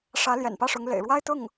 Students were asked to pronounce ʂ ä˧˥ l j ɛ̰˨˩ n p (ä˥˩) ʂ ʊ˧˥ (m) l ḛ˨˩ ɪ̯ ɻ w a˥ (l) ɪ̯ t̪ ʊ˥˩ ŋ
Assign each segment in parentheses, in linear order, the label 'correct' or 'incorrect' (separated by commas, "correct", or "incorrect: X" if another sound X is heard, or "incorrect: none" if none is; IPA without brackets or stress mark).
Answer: correct, incorrect: ŋ, incorrect: none